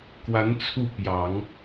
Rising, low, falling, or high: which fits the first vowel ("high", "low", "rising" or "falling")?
rising